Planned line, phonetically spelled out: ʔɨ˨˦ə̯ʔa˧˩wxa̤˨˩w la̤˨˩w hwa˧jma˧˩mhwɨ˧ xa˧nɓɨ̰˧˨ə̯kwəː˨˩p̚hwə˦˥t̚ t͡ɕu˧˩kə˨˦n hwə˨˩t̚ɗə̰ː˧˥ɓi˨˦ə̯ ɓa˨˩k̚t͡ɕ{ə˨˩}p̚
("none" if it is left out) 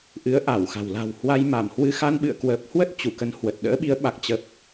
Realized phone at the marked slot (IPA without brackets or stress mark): ə˨˩